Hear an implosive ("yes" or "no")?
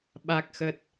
yes